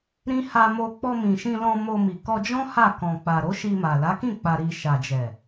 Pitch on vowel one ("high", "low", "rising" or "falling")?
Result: high